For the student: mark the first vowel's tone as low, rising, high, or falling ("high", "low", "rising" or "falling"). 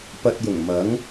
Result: low